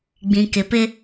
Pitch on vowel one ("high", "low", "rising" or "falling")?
low